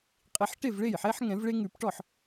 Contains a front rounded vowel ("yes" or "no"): no